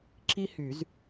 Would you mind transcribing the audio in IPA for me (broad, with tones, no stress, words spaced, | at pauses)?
ǁi˥hy˨˩˦z